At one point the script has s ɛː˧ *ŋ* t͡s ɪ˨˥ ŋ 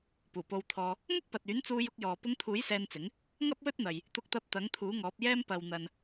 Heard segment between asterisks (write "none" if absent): n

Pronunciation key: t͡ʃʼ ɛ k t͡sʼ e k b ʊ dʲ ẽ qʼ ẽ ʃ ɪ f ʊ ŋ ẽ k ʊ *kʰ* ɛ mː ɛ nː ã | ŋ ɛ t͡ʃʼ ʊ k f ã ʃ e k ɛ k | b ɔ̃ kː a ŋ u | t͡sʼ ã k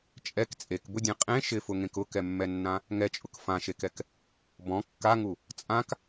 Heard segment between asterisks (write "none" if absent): k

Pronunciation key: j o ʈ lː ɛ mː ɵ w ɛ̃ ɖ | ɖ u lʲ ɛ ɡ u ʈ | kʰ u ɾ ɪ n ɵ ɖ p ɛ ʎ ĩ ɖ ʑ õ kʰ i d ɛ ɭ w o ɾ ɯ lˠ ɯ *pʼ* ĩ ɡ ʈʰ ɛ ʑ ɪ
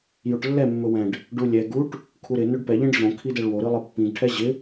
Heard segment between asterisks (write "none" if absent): pː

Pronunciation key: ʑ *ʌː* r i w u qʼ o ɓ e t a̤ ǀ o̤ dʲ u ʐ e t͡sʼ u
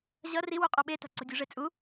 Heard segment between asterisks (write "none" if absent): ʌ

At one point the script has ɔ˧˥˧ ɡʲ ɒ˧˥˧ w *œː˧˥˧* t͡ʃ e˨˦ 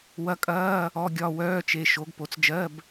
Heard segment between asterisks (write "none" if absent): œː˧˥˧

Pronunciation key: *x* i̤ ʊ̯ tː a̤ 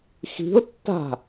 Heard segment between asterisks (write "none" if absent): x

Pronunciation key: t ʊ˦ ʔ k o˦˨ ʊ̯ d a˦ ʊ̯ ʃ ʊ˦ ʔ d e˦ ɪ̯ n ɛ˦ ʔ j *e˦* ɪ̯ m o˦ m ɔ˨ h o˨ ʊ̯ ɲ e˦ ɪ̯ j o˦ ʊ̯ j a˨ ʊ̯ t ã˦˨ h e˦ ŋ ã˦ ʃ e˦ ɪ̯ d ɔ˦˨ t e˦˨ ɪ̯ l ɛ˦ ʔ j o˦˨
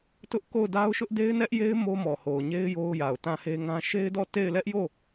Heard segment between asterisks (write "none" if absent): e˦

